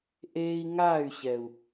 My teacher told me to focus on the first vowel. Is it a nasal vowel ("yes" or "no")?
no